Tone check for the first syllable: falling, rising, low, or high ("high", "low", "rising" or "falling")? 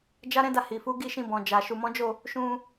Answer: high